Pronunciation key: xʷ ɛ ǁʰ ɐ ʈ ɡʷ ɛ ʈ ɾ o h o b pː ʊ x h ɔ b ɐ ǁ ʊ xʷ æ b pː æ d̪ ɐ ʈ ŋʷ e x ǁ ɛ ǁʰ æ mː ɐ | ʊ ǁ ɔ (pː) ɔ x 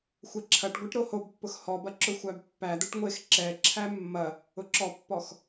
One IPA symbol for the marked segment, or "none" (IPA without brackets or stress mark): pː